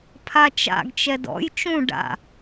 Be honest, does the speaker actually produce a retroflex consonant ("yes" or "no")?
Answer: yes